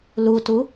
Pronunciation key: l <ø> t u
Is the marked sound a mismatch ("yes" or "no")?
yes